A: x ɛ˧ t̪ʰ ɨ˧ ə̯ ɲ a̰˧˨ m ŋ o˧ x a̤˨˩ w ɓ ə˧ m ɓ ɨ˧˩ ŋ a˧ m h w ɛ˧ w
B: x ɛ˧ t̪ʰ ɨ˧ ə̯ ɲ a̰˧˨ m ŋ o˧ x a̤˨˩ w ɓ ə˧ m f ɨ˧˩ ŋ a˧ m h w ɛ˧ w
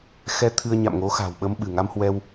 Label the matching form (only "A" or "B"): A